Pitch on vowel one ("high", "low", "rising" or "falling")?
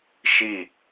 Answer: falling